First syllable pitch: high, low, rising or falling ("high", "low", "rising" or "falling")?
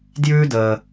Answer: high